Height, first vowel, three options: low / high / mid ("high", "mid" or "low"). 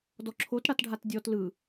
mid